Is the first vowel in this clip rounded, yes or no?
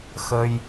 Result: no